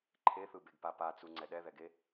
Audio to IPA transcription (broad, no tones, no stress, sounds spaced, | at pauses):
ǃʰ e θ ɯ b e ɡ p a p a t͡s u ŋ͡ǀ ɛ ɗ ɛ ð ɛ ɡ e